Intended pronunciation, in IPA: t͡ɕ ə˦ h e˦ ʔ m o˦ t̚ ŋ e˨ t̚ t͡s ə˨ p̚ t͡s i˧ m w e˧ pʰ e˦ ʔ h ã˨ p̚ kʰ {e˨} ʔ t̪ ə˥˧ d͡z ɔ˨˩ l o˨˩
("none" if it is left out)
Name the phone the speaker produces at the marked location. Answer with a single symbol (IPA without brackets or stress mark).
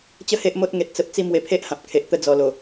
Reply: e˨